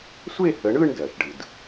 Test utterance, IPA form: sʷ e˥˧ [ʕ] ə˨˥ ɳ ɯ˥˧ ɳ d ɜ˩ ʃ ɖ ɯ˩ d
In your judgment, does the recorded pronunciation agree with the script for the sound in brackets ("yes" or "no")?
no